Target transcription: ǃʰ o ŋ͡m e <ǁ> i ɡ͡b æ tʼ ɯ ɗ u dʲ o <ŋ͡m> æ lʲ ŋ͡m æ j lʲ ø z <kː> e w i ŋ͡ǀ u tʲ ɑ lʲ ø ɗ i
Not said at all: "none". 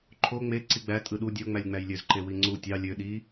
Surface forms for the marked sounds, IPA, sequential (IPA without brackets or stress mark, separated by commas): ǀ, ŋ͡m, ǃ